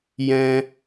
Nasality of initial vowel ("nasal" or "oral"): nasal